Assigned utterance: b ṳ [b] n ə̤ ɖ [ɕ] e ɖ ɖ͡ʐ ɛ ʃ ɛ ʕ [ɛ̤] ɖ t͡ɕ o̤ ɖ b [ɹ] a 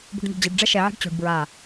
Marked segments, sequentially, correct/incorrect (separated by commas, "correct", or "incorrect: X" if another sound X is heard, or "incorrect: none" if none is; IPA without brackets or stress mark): incorrect: ɖ, incorrect: d͡ʑ, correct, correct